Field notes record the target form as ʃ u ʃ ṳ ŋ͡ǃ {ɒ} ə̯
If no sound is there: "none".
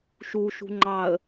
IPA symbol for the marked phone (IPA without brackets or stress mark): ɑ